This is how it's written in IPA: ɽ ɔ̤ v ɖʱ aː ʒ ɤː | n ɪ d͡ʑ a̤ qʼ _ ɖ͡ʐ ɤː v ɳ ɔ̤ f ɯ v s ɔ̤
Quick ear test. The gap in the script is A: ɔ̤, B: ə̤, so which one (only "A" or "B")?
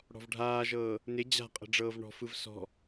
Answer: B